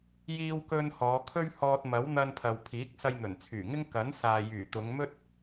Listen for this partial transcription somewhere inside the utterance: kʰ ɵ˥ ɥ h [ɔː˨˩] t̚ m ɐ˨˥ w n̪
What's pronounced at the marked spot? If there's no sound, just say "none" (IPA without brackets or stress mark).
ɔː˧